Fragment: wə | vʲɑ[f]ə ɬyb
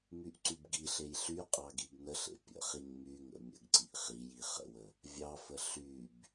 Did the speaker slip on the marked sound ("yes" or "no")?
no